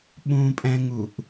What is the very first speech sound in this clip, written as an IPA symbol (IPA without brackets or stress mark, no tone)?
ɓ